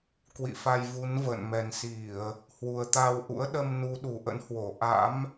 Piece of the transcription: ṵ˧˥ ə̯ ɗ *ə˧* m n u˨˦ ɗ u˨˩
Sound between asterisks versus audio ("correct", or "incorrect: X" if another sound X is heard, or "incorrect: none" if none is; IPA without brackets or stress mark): correct